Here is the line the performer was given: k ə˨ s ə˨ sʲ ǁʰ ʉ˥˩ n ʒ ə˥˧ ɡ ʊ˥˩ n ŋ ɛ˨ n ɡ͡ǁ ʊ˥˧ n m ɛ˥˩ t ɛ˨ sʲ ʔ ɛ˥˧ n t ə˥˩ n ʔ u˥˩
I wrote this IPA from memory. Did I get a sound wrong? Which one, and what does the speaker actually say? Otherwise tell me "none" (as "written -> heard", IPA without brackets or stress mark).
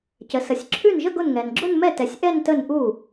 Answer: k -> c